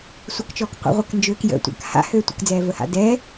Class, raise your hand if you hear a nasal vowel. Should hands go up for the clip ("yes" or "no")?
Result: no